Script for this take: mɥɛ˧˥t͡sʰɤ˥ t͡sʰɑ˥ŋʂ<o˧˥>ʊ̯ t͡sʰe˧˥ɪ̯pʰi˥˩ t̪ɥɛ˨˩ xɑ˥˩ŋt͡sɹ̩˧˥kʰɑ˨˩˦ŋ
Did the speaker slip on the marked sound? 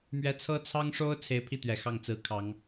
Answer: yes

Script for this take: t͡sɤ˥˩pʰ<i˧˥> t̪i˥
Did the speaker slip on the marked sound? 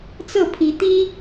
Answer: no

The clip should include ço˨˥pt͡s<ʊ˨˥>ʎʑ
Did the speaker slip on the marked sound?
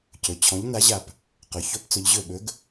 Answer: yes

